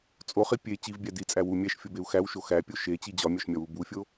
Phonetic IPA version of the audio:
t͡sʼ o χ i pʲ e t͡ɕ i v bʲ æ d i t͡sʼ æ w u mʲ æ ʃ fʲ o b e u̯ x æ w ʃ o x æ pʲ o ʃ e t͡ɕ i d͡ʑ ɒ mʲ ɒ ʃ mʲ ɒ w u b u fʲ o

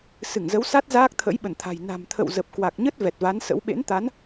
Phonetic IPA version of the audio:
s ɨ˧˩ ŋ z ə˨˦ w s a˦˥ t̚ z aː˦˥ k̚ t̪ʰ ə̰˧˥ j ɓ ə˧˩ n t̪ʰ a̤˨˩ j n a̤˨˩ m t̪ʰ ə̰˧˨ w z ə˨˩ p̚ k w a˨˩ k̚ ɲ ə˦˥ t̚ v ɛ˨˩ t̚ v a˨˦ n s ə̰˧˥ w ɓ ḛ˧˥ n t̪ a˨˦ n

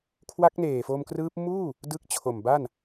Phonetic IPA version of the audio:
kʰ w a˦˥ k̚ n eː˨˩ f o˧ m k r ɯː˦˥ p̚ m uː˥˩ | d ɯ˦˥ k̚ t͡ɕʰ o˨˩ m b a˥˩ n

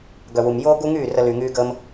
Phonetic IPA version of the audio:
ɡ œ˨ w u˨ m j oː˦ ɡ u˦ ŋ yː˦˨ r ə˧ l y˨ ŋ yː˧ ɡ əː˧ m

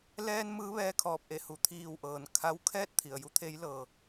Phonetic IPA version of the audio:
l ɛː˧ n m ɯː˧˥ ʋ ɛː˧ kʰ ɔː˧˩ p̚ ʔ e˧˩ h u˩ t̪ʰ iː˧˩ w ʔ ɤː˩ n kʰ a˧˥ w kʰ ɛː˥˨ t̚ t̪ʰ i˩ ə̯ j u˧˥ t̪ʰ e˧˥ j l ɤː˩

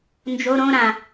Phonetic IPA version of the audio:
n d͡ʒ o ɾ õ ɾ ã

